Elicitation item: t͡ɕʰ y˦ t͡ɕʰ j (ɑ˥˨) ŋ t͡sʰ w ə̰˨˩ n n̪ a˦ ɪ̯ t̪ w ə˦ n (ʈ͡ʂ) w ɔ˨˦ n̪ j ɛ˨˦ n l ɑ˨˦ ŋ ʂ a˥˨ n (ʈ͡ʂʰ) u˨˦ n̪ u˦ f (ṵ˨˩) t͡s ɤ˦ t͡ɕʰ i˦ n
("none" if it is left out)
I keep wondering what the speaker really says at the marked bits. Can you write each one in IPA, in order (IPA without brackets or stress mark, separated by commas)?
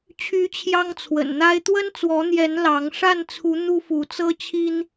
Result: ɑ˦, t͡s, t͡sʰ, u˨˦